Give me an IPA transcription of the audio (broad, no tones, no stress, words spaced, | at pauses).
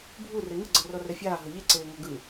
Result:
bʱu reŋɯ ɡ͡ǀɤrɔrɛfʲaː ɦɤʎe ǀeːŋɔɡɯ